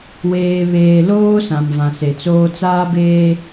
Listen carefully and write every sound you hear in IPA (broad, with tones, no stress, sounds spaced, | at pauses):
w eː˨ β eː˨ l oː˦ s ã˨ m v ã˨ s e˨ t͡s oː˦ t͡s aː˦ b eː˦